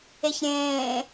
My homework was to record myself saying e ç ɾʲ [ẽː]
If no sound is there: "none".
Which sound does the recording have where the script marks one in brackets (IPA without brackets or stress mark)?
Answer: ẽː